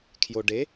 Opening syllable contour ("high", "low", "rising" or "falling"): low